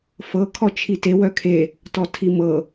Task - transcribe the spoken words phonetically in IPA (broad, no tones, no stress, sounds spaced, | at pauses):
f ɤ kʰ ɔ t͡ʃʰ i t e w œ kʰ e | t ɔ tʰ i m ɤ